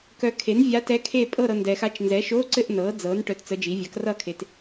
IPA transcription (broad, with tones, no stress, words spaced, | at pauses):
kœ˨kʰe˩˥n vʲa˧˥tɛ˧˥kʰe˥˧ pʼɤ˥˧ɾɤ˨ ndɛ˨xa˧˥t͡ʃ nzɛ˩˥ʃo˧˥˧ǀɘ˥˧ʔ nɤː˩˥d͡zɤː˩˥n ʈœ˧˥˧tt͡sə˧˥d͡ʒi˩˥ vʲa˩˥k rʌː˥˧kʰe˨t